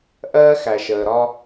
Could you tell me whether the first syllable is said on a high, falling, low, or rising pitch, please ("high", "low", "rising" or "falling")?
high